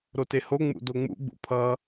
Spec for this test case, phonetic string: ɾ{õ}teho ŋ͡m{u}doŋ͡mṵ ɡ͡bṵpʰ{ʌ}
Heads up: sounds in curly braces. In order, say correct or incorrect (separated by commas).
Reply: incorrect, incorrect, correct